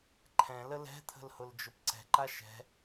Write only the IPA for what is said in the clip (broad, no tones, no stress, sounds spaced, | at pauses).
ǃʰ ɛ̃ l ə l ɛ̤ t̪ʰ ə̤ l h ʊ l d͡ʒ ʊ p ǀ ɛ̤ ǃ a ʃ ɛ̤